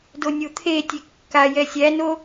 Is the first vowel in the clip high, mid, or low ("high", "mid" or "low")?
mid